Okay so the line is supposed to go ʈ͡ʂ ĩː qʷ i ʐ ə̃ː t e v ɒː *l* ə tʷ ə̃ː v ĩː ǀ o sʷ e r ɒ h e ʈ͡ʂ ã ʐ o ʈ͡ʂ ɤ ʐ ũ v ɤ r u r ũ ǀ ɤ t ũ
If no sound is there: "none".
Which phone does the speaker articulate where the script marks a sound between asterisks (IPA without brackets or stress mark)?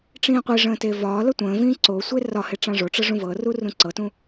l